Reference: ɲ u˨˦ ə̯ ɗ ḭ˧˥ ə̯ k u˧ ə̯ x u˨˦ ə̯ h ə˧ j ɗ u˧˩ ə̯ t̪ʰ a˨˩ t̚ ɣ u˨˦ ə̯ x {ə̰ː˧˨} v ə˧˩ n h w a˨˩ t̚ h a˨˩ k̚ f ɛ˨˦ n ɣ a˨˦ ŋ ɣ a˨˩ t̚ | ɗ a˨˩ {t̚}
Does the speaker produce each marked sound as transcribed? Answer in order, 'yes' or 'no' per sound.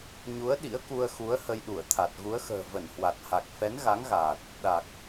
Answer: no, no

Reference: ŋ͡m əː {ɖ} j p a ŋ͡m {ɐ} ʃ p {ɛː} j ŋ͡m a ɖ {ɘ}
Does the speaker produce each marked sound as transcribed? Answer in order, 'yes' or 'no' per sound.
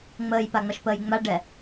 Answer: no, yes, no, no

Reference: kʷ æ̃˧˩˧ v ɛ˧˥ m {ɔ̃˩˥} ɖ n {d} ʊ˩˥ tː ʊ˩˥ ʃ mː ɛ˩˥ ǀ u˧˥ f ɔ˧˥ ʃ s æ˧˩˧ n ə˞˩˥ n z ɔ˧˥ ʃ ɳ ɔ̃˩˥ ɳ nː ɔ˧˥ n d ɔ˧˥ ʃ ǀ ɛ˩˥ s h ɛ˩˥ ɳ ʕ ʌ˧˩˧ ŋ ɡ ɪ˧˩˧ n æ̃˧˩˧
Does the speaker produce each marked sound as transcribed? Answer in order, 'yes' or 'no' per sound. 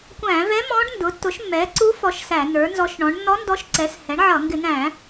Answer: no, yes

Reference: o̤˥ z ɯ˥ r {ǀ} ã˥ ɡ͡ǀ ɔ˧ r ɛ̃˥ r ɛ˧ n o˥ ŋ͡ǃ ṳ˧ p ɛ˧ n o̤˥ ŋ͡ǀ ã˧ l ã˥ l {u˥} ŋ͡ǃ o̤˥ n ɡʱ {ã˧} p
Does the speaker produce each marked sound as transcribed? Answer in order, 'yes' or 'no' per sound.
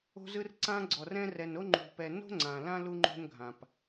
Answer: yes, yes, yes

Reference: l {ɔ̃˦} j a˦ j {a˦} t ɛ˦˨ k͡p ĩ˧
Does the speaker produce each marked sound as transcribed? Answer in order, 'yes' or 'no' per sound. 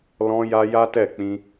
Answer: yes, yes

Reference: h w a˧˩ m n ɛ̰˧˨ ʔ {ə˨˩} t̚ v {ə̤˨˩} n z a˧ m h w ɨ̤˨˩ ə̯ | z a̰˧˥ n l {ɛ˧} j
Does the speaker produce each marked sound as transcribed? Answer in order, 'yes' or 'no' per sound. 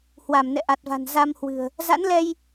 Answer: no, no, yes

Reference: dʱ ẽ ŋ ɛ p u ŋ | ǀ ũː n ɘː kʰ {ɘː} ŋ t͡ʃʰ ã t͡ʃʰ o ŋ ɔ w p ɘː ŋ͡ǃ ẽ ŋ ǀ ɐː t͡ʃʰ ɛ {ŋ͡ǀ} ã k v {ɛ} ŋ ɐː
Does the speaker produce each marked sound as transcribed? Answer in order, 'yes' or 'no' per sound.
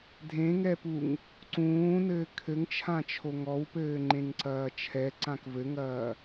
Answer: no, no, no

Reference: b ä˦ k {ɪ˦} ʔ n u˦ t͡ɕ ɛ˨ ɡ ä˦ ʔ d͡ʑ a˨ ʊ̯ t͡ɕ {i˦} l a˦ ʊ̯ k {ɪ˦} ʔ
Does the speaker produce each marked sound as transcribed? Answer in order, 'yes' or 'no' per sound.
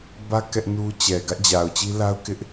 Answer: no, yes, yes

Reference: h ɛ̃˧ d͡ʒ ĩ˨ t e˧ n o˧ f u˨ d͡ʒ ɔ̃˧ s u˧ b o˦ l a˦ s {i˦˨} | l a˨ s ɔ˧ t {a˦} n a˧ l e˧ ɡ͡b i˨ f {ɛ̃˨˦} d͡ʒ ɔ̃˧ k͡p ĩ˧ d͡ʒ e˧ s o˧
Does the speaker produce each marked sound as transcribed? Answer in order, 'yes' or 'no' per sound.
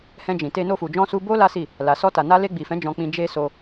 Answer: yes, no, yes

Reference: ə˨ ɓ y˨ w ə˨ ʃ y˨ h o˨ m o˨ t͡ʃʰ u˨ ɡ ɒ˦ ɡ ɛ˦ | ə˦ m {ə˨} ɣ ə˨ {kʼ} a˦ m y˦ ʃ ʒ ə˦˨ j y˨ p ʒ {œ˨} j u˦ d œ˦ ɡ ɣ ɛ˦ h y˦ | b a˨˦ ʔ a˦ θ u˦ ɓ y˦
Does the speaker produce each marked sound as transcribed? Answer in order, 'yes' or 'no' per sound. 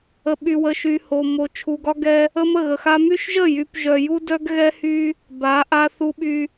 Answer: no, no, yes

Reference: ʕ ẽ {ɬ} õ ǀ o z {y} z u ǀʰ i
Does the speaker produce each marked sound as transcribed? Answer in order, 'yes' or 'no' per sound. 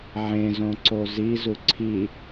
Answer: no, no

